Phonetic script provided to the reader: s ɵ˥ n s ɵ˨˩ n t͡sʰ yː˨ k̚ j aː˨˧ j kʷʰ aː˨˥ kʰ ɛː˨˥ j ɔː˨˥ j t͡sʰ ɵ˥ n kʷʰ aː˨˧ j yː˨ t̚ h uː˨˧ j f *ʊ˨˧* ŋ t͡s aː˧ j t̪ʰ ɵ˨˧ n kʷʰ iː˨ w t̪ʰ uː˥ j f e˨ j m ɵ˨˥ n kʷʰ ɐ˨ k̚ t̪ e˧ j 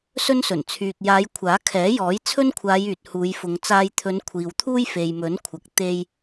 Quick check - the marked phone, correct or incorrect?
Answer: correct